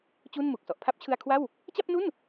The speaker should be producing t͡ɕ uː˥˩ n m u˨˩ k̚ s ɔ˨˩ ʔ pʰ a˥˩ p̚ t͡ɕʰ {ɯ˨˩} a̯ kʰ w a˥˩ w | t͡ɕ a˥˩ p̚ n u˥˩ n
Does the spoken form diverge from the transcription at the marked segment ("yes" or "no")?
yes